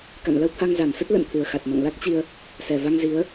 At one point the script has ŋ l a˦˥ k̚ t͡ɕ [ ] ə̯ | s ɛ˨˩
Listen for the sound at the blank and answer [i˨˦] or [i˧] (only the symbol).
i˧